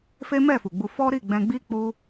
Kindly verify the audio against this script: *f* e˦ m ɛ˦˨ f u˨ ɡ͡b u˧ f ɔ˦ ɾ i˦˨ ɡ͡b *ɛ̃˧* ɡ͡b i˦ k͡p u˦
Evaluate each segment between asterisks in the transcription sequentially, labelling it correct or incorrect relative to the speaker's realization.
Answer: correct, correct

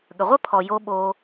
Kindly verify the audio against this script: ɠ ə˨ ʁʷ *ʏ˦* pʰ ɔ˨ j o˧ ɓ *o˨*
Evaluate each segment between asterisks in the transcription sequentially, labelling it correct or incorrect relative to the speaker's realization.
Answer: incorrect: ə˦, incorrect: o˧

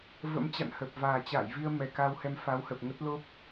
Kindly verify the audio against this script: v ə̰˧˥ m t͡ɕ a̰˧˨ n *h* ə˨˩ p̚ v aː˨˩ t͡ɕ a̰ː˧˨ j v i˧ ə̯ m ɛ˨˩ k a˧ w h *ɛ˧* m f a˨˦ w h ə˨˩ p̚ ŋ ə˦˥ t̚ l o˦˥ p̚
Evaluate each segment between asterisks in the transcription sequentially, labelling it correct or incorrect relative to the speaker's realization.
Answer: correct, correct

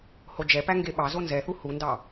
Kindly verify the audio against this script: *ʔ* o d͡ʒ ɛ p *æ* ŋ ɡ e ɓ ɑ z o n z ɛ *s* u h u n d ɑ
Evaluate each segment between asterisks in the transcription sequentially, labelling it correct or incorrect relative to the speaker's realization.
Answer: incorrect: h, correct, incorrect: θ

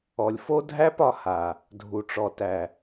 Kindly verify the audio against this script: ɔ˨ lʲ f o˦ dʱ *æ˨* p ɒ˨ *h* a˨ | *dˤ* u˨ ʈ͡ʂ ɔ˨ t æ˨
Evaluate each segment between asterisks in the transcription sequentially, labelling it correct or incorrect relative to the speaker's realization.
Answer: incorrect: æ˦, correct, incorrect: dʱ

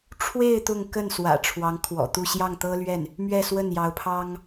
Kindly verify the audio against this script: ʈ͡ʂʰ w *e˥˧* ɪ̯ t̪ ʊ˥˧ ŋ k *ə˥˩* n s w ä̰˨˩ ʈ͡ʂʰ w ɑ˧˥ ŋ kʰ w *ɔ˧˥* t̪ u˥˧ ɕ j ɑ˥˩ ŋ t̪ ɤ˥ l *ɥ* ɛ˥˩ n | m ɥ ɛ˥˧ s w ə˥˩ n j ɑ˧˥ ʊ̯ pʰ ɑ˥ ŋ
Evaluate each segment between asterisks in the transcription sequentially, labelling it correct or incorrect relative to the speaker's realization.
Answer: correct, correct, incorrect: ɔ̰˨˩, correct

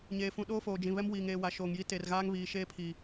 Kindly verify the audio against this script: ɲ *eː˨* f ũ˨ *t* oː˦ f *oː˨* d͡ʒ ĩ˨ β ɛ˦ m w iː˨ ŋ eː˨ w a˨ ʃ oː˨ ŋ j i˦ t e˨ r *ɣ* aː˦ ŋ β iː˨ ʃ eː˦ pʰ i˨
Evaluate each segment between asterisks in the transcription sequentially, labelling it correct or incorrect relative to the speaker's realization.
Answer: correct, incorrect: ɗ, correct, correct

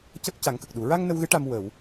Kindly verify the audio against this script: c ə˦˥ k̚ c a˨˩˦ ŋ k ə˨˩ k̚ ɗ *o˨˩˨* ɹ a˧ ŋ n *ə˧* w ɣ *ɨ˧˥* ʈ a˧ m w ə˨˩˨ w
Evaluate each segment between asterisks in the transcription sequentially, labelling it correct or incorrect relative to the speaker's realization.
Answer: incorrect: u˨˩˨, correct, correct

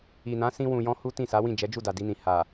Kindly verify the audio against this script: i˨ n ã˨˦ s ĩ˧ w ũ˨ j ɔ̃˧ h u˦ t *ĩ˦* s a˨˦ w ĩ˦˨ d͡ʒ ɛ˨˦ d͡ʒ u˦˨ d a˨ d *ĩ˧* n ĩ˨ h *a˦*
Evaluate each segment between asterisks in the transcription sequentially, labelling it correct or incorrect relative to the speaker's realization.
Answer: incorrect: ĩ˦˨, incorrect: i˧, incorrect: a˨

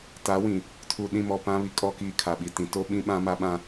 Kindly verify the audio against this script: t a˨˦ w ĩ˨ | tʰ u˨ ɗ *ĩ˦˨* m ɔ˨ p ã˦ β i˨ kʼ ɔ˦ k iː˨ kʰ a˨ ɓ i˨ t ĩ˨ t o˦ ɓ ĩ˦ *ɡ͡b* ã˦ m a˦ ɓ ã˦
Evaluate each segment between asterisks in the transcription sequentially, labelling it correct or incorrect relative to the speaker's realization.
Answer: correct, incorrect: ɓ

